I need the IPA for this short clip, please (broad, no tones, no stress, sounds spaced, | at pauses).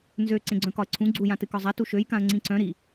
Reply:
n z ø ǀ ẽ ɡ͡ǀ œ̃ k ɒ ə̯ ǀʰ ũ ɡ͡ǀ u j ã t ɨ k ɒ zˤ a t u ʃ ø j k ã ə̯ ŋ͡ǀ ĩ ǀ œ̃ ɾ i